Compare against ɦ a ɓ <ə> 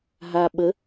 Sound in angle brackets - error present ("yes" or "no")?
no